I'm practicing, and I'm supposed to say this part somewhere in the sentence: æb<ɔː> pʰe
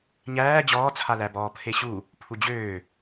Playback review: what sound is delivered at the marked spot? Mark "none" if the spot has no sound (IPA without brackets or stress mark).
ɔː